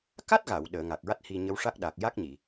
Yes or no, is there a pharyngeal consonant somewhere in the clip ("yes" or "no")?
no